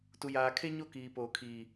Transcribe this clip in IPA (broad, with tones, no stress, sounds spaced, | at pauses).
t u˨ j aː˨ kʰ e˦ ɲ o˦ k iː˨ p oː˨ kʰ iː˨